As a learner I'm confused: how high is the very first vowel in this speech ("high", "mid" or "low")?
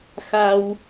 low